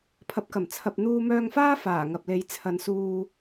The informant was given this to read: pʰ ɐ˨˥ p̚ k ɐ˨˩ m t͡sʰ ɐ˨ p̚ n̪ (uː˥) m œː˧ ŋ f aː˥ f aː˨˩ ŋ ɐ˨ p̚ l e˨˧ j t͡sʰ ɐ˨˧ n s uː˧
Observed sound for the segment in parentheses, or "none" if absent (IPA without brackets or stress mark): uː˧